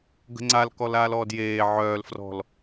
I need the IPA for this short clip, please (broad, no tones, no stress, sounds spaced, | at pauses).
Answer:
ɡ ə̤ ŋ͡ǀ a l k ɔ l aː l ɔː d j eː ʕ œː l f r ɔ̤ l